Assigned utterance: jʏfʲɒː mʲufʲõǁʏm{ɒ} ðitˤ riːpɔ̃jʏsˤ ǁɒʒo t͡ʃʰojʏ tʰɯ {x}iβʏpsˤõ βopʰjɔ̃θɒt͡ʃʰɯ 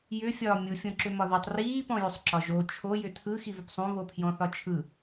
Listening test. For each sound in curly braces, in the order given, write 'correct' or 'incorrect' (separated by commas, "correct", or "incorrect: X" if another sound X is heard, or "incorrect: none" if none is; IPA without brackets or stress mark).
correct, correct